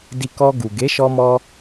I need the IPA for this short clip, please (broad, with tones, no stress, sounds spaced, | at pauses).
d i˧ k ɔ˧ ɡ u˨ ɡ e˨˦ ʃ ɔ˧ m ɔ˧